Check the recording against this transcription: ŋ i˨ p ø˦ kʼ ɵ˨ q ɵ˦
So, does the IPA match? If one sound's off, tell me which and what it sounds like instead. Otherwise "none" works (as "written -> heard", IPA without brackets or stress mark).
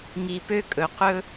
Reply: none